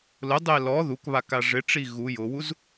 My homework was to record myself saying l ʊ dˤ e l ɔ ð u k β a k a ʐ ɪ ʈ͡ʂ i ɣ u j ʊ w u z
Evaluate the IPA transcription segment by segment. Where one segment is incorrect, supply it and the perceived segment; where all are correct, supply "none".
none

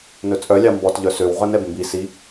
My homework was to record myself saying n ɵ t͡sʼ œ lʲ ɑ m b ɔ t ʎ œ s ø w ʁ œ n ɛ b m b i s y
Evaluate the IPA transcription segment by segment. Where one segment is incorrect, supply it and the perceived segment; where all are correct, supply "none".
y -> i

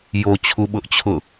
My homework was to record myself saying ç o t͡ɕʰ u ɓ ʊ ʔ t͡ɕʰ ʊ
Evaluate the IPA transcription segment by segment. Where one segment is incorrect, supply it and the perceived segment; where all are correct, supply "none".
ç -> j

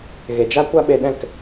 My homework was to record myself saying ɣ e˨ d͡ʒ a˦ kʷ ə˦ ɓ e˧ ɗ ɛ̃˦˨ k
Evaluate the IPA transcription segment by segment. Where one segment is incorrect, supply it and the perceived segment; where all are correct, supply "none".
ə˦ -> a˦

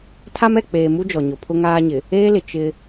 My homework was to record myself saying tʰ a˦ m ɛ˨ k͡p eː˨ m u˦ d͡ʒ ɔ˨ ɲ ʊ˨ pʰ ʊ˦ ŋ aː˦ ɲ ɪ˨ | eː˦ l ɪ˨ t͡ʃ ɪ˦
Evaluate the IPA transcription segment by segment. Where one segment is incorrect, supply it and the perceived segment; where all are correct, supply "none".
none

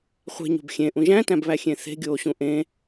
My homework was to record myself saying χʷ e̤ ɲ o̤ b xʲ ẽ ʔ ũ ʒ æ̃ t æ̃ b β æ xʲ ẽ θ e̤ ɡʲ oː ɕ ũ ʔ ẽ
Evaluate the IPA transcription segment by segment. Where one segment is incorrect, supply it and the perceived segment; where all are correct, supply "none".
none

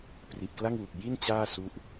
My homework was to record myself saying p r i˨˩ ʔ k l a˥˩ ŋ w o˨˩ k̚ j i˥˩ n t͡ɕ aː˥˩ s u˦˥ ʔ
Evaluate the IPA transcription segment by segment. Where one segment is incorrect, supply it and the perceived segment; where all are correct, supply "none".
o˨˩ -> u˨˩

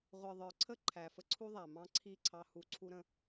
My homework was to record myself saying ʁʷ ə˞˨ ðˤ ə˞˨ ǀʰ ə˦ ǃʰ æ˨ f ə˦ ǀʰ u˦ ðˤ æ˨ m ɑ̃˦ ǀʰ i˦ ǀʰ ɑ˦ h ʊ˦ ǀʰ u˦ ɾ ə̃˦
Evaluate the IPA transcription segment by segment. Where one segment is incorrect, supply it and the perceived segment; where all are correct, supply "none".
ʊ˦ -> u˦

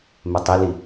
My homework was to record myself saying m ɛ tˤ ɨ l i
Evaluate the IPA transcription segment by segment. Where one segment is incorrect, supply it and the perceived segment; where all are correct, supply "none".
ɨ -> i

